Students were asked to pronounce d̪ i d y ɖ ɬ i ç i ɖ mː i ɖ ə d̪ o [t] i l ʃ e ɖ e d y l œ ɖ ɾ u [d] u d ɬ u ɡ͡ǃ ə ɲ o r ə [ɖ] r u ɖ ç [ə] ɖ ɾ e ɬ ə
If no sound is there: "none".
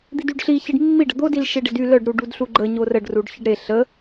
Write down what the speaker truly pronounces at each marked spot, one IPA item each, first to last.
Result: d, ɖ, ɖ, ə

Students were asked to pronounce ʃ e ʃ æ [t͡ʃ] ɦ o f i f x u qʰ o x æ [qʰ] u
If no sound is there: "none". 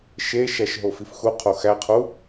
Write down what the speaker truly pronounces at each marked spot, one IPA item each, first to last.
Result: ʃ, qʰ

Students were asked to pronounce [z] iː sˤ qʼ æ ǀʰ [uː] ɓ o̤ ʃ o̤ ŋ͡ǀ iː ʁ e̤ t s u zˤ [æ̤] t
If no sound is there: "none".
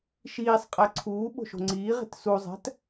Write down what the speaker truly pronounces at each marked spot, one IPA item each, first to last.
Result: ʃ, uː, æ̤

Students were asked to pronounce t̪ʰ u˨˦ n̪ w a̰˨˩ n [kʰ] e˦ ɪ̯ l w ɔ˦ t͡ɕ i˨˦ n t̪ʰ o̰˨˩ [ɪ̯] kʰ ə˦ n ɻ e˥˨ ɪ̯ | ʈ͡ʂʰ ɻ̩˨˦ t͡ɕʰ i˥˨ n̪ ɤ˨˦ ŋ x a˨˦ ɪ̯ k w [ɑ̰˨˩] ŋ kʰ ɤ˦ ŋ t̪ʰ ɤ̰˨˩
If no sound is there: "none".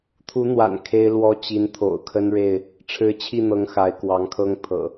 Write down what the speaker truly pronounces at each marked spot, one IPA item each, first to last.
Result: kʰ, ʊ̯, ɑ˨˦

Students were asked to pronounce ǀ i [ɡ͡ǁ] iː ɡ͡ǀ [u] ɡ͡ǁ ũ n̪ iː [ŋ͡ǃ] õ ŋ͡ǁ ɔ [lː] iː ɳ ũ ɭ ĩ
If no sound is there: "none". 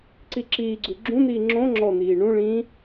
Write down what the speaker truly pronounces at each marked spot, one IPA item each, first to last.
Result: ǁ, u, ŋ͡ǁ, n̪

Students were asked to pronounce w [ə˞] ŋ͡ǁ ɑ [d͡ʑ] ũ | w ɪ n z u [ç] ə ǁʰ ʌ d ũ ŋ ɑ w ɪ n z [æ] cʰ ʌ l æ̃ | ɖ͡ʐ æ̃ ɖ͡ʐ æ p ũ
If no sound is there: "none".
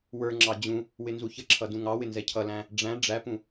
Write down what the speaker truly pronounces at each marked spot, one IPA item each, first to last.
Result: ə˞, d͡ʑ, ç, ɛ

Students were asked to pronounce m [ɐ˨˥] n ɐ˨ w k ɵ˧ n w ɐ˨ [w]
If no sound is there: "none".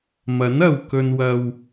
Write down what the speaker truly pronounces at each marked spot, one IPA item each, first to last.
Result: ɐ˨˥, w

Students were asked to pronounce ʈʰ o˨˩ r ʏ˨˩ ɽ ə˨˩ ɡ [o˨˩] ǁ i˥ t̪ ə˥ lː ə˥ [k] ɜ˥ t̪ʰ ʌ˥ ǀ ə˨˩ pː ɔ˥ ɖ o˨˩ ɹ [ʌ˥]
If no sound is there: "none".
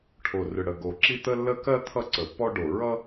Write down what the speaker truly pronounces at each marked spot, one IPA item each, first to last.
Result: o˨˩, k, ʌ˥

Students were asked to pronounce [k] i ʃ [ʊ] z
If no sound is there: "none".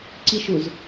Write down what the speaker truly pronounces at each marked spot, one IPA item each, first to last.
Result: ǀ, ʊ

